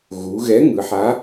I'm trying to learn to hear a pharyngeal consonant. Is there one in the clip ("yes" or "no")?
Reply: yes